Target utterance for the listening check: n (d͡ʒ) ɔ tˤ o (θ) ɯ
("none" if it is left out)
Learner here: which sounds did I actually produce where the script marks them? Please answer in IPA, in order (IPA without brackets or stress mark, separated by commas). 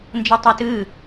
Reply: d͡ʒ, t